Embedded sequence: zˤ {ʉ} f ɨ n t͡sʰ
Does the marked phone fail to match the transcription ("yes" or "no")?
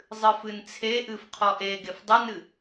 yes